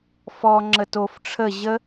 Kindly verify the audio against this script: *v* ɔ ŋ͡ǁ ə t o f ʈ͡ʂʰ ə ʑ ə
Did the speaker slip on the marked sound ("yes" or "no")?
yes